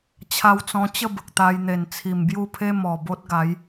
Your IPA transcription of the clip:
t͡ɕʰ a˧ w t͡s ɔ̃˧ t͡ɕ ə˥˧ b ə˨ k̚ t̪ a˧ j n̪ e˨˩ n t͡sʰ i˨˩ m b j u˥˧ pʰ e˦ m ɔ˨˩ b o˦ t̚ ɡ a˨˦ j

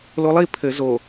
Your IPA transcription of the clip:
l o lˠ i pʰ ɘ z o

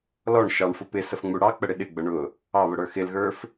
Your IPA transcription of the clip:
l ɔ ɳ ʃ ɑ ɳ f ʊ p ɪ s ə f ŋ͡m u ɽ ɑ k͡p ə ɽ ɪ ɗ ɪ ɡ͡b ə ɳ ʊ | ɑ β ʊ ɽ ə˞ x ɪ l ɣ ə˞ f

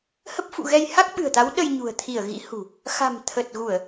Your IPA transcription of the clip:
h ə˦˥ p̚ f ṵ˧˨ ɣ ɛ˧ j h a˦˥ k̚ ɓ ɨ̤˨˩ ə̯ t̪ a˨˦ w ɗ ə˧ j ɲ ṳ˨˩ ə̯ t̪ʰ i˧˩ ə̯ ɣ ḭ˧˥ h ṳ˨˩ | x a̤˨˩ m t̪ʰ ə˨˩ t̚ ɣ u˧˩˨ ə̯

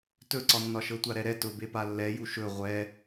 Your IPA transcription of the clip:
t ɵ ǀ ɒ nː ɒ ʃ ɤ tʷ a ɾ ɛ ɾ ɛ t ʊ b e p a lː ɛ j u ʃ ɵ ʁʷ ɛ

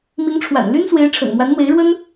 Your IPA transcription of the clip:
m i˧˥ ŋ ʈ͡ʂʰ w a̰˨˩ n l y˥ n s w e˧˥ ɪ̯ ʈ͡ʂʰ ə̰˨˩ n m w a˧˥ n n̪ w e˧˥ ɪ̯ ɻ w ə˥ n

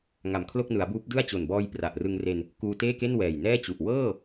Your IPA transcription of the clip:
ŋ a˨˩ m kʰ l o˥˩ k̚ n ɯ˩˦ a̯ b uː˦˥ p̚ d ɯ˥˩ a̯ t͡ɕ o˨˩ n b ɔː˧ j p r a˨˩ ʔ r ɯ˧ ŋ r e˧ n | k uː˧ t eː˥˩ k e˥˩ n w ɛː˨˩ j n ɛː˥˩ t͡ɕ u˨˩ ʔ w ɤː˥˩

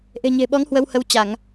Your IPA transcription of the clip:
ʔ e̤˨˩ ɲ e̤˨˩ ɓ ɔ˨˦ ŋ h w ə˧ w h ə˧ w t͡ɕ a˧˩˨ ŋ

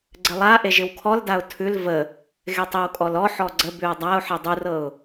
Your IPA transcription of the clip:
ɡ͡ǀ ɘ lˠ a ʔ e ʒ ɪ w kʰ ɔ l d a ʊ̯ tʰ ʉ l v ə | ɣ e tˤ ə w kʼ ɔ l ɔ ħ ɔ ɡ͡ǀ ə b ʉ ʊ̯ dˤ a ʊ̯ ħ e dˤ u r ɤ ʊ̯

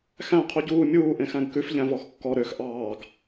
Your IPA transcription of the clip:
x æ̃ qʰ u ɟ uː mʲ uː ʔ ẽ x æ̃ ɡ k ʉ f ʎ æ̃ v ɔ x kː ɔ ɾ ø x ʔ ɑː ɡ

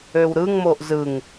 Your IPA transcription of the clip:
ø w ɾ ɯ ŋ m o ʔ z ɯ ŋ

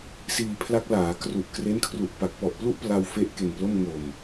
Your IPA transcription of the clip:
s iː˧ pʰ l a˦˥ k̚ l aː˩˦ k r u˨˩ ʔ k r e˦˥ n kʰ r u˨˩ ʔ p a˨˩ k̚ p ɔ˨˩ ʔ p l u˥˩ ʔ p l a˧ w f e˦˥ ʔ k e˨˩ n p l o˥˩ m ŋ o˨˩ m

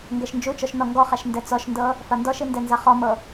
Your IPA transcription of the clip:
ŋ ɡ ɛ ʃ n d͡ʒ u t͡ʃ ɔ ʃ n ɔ ŋ ɡ ɔ χ a ʃ n d ɛ t͡s ɔ ʃ n d ɤ | f a n d ɔ ʃ i n d ɛ n z a χ ɔ m ɤ

